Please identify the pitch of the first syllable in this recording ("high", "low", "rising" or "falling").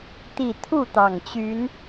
low